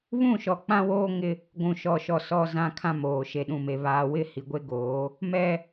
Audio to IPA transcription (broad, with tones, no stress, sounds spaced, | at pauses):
β ũ˦˨ ʃ ɔ˨ k͡p ã˦ w oː˦ ŋ ɪ˦ | ɡʷ ũ˨ ʃ ɔ˨ ʃ ɔ˨ s ɔ˨ z ã˦ kʰ ã˦ m oː˨ ʃ e˨ ɗ ũ˨ m e˨ β aː˨ w ɪ˦˨ h i˨ ɡʷ e˦ ɡ oː˨˦ | m ɛ˦